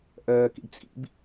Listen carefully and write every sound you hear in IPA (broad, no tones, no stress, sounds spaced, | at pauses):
ʔ ɜː k ḭ ɖ t͡sʼ ḭ b